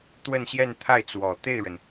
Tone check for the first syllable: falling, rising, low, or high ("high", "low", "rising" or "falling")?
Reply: falling